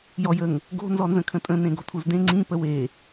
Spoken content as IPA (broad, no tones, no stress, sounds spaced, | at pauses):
j ɔ j ə ŋ | ɡ o̤ n z ɔ n z ə̃ kʰ ə̃ tʼ ə̃ n ẽ ɡ o̤ tʰ u z d ẽ ŋ͡ǀ ĩ p ə w e